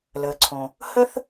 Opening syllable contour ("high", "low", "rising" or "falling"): low